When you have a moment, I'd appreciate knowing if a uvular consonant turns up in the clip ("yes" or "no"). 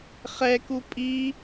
yes